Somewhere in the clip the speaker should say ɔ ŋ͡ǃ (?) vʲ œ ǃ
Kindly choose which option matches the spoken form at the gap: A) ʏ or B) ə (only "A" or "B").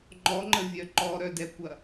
B